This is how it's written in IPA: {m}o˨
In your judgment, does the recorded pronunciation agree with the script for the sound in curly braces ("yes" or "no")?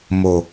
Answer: yes